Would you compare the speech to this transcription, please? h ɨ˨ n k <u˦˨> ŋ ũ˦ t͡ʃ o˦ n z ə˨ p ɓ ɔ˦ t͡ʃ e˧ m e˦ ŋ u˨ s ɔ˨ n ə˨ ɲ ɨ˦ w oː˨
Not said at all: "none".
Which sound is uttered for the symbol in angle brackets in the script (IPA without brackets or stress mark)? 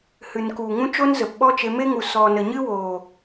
u˨